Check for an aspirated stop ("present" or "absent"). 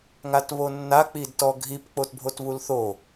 absent